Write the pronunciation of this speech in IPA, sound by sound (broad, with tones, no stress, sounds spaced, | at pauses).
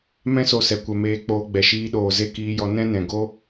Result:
m ɛ̃˦ s o˧ s ɛ˨ kʷ ɛ˨ m eː˧ k͡p oː˧ ɡ͡b ɛ˨ ʃ iː˧ ɗ oː˨ z e˦ k iː˧ j ɔ˧ n ɛ̃˦ n ɛ̃˨ ɡ o˦